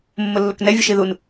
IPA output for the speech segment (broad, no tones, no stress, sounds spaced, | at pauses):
mː ʊ lː ʊ k n ɛ vʲ ʊ ʃ i ð u n